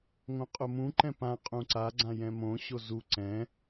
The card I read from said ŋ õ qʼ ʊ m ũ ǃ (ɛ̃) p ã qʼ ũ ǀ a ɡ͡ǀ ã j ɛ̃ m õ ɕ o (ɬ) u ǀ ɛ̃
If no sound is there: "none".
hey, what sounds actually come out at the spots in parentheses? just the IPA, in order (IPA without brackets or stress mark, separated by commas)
ɛ̃, z